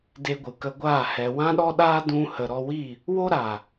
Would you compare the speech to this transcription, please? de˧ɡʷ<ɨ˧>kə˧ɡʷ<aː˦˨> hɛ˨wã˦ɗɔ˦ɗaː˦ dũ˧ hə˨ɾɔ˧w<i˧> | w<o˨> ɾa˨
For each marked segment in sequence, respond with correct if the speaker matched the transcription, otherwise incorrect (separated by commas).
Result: incorrect, correct, incorrect, incorrect